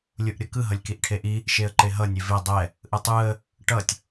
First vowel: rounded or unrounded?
rounded